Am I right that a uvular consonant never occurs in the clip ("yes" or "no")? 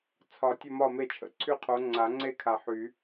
no